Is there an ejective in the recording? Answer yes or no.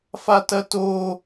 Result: no